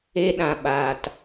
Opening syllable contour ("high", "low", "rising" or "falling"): high